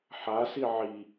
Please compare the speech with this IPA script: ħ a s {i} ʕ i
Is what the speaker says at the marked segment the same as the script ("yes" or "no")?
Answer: yes